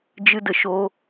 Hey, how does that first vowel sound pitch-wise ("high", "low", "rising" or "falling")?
high